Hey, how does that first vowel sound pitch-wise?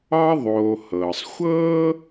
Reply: high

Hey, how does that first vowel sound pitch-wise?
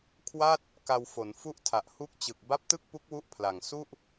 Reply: falling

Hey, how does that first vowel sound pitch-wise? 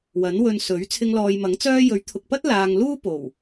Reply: rising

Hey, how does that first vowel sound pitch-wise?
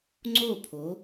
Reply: falling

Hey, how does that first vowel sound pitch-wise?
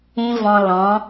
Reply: high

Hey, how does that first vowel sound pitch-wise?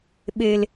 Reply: low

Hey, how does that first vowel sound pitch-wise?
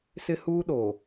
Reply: high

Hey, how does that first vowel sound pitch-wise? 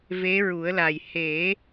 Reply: rising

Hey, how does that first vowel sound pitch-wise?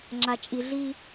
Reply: low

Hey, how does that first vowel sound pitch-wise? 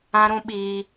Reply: high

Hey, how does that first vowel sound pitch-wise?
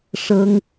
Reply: high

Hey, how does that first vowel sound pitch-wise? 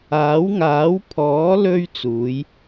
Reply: rising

